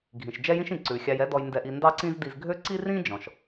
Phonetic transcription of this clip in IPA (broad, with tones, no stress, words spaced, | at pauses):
ɡʱĩ˩ʃ d͡ʒɛ˥jĩ˥ʃĩ˩ ǀʉ˩xʲɑ˧jɛ˥dɔ˧j ndɛ˧ʔi˧ ndɑ˥ǀĩ˥zdi˧z ɡʱø˥ ǀi˥rĩ˥ d͡ʒɔ̃˩ʃ